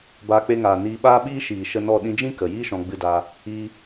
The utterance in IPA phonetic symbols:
baː˧k͡pe˧ŋaː˨ niː˧ ɓaː˦ɓiː˦ ʃiː˨ ʃə˦ nɔ˦˨ɗĩ˦ d͡ʒĩ˦kə˨ jiː˦ʃɔ̃˧ɡ͡bɨ˧daː˧ | iː˧

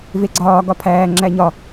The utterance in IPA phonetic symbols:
veɡ͡ǀɒː ɡɒpʰæː ŋ͡ǁæɲɒ

